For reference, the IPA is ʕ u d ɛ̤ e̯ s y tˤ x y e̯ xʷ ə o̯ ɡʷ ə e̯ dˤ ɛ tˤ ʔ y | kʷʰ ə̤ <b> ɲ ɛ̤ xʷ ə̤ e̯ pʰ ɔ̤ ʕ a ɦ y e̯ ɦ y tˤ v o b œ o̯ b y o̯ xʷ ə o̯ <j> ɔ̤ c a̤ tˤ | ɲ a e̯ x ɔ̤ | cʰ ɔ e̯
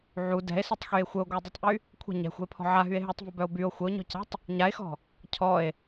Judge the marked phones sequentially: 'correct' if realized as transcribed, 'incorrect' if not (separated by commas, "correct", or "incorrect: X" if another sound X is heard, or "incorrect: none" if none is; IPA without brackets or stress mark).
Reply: incorrect: none, incorrect: ɲ